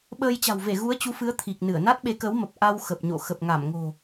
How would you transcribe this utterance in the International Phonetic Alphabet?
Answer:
ɓ əː˧ j t͡ɕ a̤˨˩ w v e˧˩ ɣ u˨˦ ə̯ t͡ɕ u˨˦ f ɨ˨˦ ə̯ t̪ʰ i˨˩ k̚ n ɨ˧˩ ə̯ n a˦˥ t̚ ɓ e˨˦ k ə˨˦ w m ə˨˩ p̚ ʔ a˧ w x ə˨˩ p̚ ɲ o̰˧˨ x ə˨˩ p̚ ŋ a˧˩ m ŋ o̤˨˩

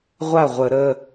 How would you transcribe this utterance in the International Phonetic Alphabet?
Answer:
ʁʷ a˥˩ ʁʷ ə˧˩˧ ɾ ə˩˧˩

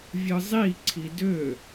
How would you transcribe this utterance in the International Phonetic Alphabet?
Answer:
vʲ ɯ zˤ i ǀʰ i d ø

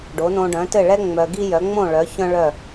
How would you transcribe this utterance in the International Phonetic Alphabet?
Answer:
ɖ o˩˥ n õ˧ ɖ œ̃˩˥ t ɘ˥˩ ɭ ɛ˥ ŋ͡m œ˧ ɡ i˥ j œ˩˥ ŋ͡m õ˥˩ ɭ œ˩˥ ç œ̃˥ ɭ œ˥˩

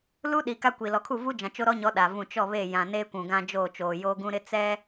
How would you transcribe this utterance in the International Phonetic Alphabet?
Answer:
l u˦ ɗ i˨ k a˦ kʷ i˨ l ɔ˨ kʰ u˦˨ v u˦ d͡ʒ ã˨ t͡ʃ o˦ ɾ ɔ˦ ɲ ɔ˨˦ ɗ a˨ v ũ˦˨ t͡ʃ ɔ˦˨ β e˦˨ j ã˨ n eː˦ kʷ ũ˨ ɡ ã˦ d͡ʒ oː˦˨ t͡ʃ oː˨ j oː˦ ɡ ũ˦ ɾ ɪ˦ t͡s ɛ˦

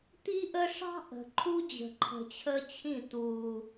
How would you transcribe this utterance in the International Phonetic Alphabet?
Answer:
t̪ i˦ ʔ ə˦ ʂ ɑ̤˦ ʔ ə̤˨ ǃʰ u˦ d͡ʑ ə̤˨ ǃʰ ə̤˨ t͡ɕʰ əː˦ t͡ɕʰ ĩ˦˨ t̪ uː˨

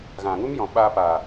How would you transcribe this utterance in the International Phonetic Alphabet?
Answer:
ɣ ã˨ ŋ u˦ m j ɔ̃˨ ɓ aː˧ p aː˨

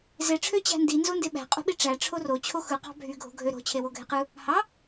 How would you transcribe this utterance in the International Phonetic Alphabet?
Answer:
z e ʈ͡ʂʰ ø t͡ɕ æ̤ n d i n z o n d e ɓ æ̤ qʼ o̤ ɓ i ʈ͡ʂ æ ʈ͡ʂʰ o r o t͡ɕʰ o x ɯ q ɑ̤ bʱ y ɡʱ o̤ ɡʱ ø ɾ o̤ t͡ɕʰ e w o ɡʱ e q ɯ | h ɑ

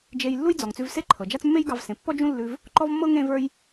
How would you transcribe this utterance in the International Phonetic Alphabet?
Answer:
d͡ʒ e˧ j lː u˥ j d͡z ɔ˩ ŋ t͡s ʉ˧ v s e˥ ǃʰ ɤ˩ d͡ʒ a˥ t͡s mː e˥ j ɡ ɑ˧ v s ẽ˩ pː ɔ˥ d͡ʒ ũ˥ lː ʉ˧ v | ǃ ɔ˥ v mː ɤ˥ ŋ ẽ˥ v ə˞˥ j

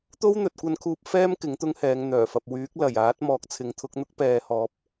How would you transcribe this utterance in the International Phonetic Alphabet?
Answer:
t̪ o˥ w n̪ ɵ˨ t̚ kʷ ɐ˧ n kʰ uː˧ p̚ f ɛː˥ m k ɪ˨˥ ŋ t̪ ʊ˥ ŋ h ɛː˨˧ ŋ n̪ œː˨˩ f ɐ˨ p̚ w yː˨˥ k̚ l ɐ˨˩ j aː˨˥ t̚ m ɔː˨ k̚ t͡sʰ ɪ˨˥ ŋ t̪ʰ ʊ˨˥ k̚ n̪ ʊ˥ k̚ p ɛː˨ h ɔː˨˥ p̚

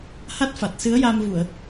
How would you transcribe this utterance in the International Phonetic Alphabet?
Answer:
h a˦˥ t̚ f a˨˩ t̚ s ɨ˧˥ ə̯ j a˧ m v u˨˩˨ ə̯

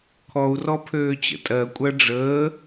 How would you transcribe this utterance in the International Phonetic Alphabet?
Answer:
kʰ ɔ u̯ r ɔ pʰ øː t͡ɕ ə̰ tʼ ɜ kʷʼ ɜ ɖ͡ʐ əː

